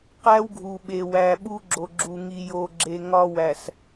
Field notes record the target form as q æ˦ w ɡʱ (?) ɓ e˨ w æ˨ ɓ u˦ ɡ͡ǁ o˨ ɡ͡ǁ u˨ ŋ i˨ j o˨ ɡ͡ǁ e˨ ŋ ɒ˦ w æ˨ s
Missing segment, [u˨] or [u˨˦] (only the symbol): u˨